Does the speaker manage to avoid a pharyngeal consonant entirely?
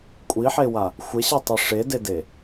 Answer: no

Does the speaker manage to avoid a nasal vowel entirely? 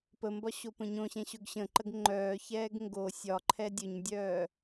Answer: no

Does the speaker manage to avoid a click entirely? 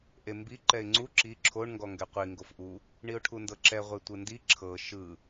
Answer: no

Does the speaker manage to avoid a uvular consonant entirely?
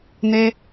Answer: yes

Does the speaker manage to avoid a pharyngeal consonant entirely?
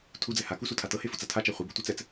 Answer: yes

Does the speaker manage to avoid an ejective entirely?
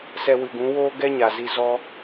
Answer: yes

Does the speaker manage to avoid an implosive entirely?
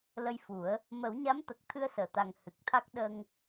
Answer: no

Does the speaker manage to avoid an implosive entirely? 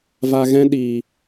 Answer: no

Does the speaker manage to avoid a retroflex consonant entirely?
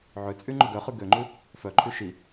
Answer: yes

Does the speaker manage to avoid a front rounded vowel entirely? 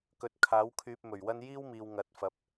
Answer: no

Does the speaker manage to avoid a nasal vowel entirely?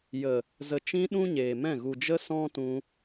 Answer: no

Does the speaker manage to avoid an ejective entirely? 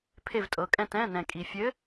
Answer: no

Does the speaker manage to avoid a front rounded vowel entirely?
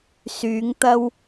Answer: no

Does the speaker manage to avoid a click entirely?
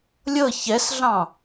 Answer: yes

